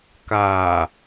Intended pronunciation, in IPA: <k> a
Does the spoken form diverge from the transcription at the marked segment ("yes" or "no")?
no